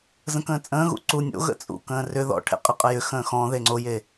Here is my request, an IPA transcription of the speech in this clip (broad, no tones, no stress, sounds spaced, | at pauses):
z ə̃ k ə̃ː t͡sʼ ə̃ː ɣ ṵ ǀ u nʲ o̰ ɣ ə̰ t͡sʼ ṵ k ə̃ː r ʏ ð ɔ̰ ʈʰ ḛ qʼ ɪ qʼ ə j ʏ x ə̃ː x ɔ̃ ð e ŋ͡ǀ o j e